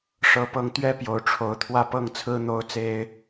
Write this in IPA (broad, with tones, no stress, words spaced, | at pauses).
ʂɤ˧˥pɤ˧˥ŋt̪ɥɛ˥ pjo˧˥ʊ̯ʈ͡ʂʰo˧˥ʊ̯ t̪ʰwä˥˧pɤ˥˩ŋt͡sʰɹ̩˥ n̪o˥ʊ̯t͡se˥ɪ̯